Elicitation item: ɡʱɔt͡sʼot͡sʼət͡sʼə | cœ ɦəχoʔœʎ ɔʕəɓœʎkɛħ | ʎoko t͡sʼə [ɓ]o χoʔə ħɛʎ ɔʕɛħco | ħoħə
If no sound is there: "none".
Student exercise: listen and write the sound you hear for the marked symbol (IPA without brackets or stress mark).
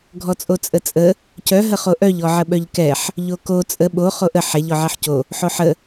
ɓ